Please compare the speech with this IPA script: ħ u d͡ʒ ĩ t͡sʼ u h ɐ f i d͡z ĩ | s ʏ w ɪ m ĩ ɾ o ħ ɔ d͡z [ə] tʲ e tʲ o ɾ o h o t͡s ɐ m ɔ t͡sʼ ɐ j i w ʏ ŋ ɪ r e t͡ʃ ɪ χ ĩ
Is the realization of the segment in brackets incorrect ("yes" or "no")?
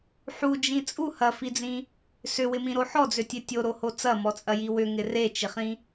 yes